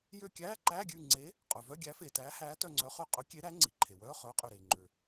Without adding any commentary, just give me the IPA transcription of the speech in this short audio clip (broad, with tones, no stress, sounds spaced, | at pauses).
j ø˦˨ kʲ æː˧˥˧ ǃ æː˧˥˧ ɡʲ ʉː˦˨ ŋ͡ǀ e˨˥ | qʼ œ˩ v œ˧˥˧ ɡʲ æ˨˥ f eː˩ t æː˨˥ h æː˨˥ t œ˦˨ ŋ͡ǀ œ˨˥ χ ø˦˨ qʼ ɵ˨˥ kʲ e˨˥ ɾ æ˨˥ ŋ͡ǀ i˩ ǃʰ e˩ w œː˧˥˧ χ œː˨˥ qʼ ø˩ ɾ eː˩ ŋ͡ǃ ø˩